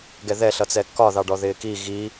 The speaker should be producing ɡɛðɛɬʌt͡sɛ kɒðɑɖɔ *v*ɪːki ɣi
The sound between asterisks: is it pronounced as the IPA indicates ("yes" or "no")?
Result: no